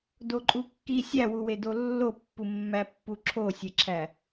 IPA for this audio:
doǃʼukːi sʲæwuwedo lːopːumːæpːu ǁʰosʲeǁʰæ

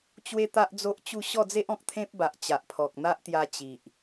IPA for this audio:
t͡ɕwe˦t̪a˦ʔd͡zo˦ʔt͡ɕu˥˧ ɕɔ˥˧d͡ze˦ʔɔ̃˨k̚ t̪ʰẽ˦p̚ba˨ʔt͡ɕa˨ʔpʰɔ˨k̚ n̪a˦ʔt̪ja˧ t͡ɕi˨ʔ

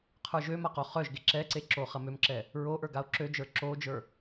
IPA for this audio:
qʰə˞ʒøma qoχœʒɡe ǁɛǀe ǁoχɐmømǁɛ | ɹoʔə˞ ɡao̯ǁød͡ʒə˞ ǁod͡ʒə˞

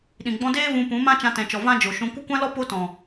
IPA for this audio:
ɗĩ˨ɡ͡bɔ̃˧deː˦ vũ˧pũ˨˦mã˦ t͡ʃã˧tɛ̃˨t͡ʃɔ˨ vã˦d͡ʒo˨ʃũ˧ kʷɨ˦˨kʷã˦lɔ˦ po˦tɔ̃˨

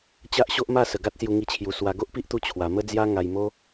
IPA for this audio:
t͡ɕa˦ʔɕo˦ʔma˥˧ sə˨˩ɡa˦t̚sju˧ ŋi˧t͡ɕʰju˨˩ swa˧ ɡo˦ʔpi˦ʔt̪u˧ t͡ɕʰwa˨˩mə˦d͡zja˦ ŋa˨˩jmo˧

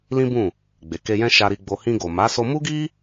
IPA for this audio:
lĩ˦bũ˦˨ | ɡ͡be˨ke˧jɛ̃˦ ʃa˧ɾi˧ɡ͡bo˧ hĩ˧ɡo˨ma˨˦ so˧mu˦ɡi˦

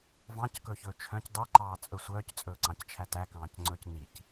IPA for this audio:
vɑ̃ckɵçɵː t͡ʃʰœ̃c dˤɛǃɑːt͡sʼɵ sʷœːct͡sʼɵːǀɑ̃ct͡ʃʰæ tækɑ̃ːcŋ͡ǀɵːc nic

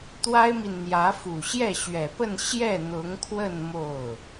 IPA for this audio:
t̪wa˥ɪ̯mi˨nn̪jä˧˥ fu˨˩ɕjɛ˥˩ɕɥɛ˨˩pə˥˧n ɕjɛ˥˩n̪ʊ˧˥ŋkʰwə˥˧n mo˥˩ʊ̯

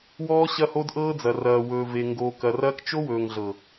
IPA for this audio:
wɔː˦ ɕɐ˦ho˦dʔɤː˦d͡zɐ˨ rɐː˨wɵː˨ve˨ ŋɡoː˨kɐ˨rɐː˦k t͡ʃo˦wɵː˨ŋɮɤ˨

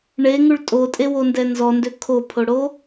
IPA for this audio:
ɳeŋʉɭ tʼotʼewondɛ nzɔndø kʰopʰoɽo

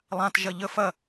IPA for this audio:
lˠãtʒɐ ʎə fɐ

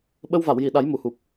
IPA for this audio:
ɓə˧wva˨˩˨wji˨˩˨ ɗa˨˩˦j mu˨˩˨hu˨˩p̚

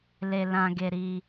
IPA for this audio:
le˧lã˧ɡe˧ɾi˧

